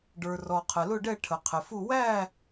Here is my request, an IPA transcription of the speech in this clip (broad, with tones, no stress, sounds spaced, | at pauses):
ɖ ə˞˩ r ɔ˩ qʰ ə˩ l ʊ˥˨ ɖ ɛ˥˨ ʈʰ ə˩ qʰ ɪ˩ f u˥˨ w æ˥˨